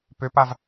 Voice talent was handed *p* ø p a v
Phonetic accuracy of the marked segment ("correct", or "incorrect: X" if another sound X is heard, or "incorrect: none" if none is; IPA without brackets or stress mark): correct